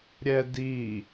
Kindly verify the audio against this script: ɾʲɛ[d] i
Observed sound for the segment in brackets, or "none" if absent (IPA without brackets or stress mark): d